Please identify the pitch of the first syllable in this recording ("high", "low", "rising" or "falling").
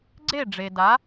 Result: falling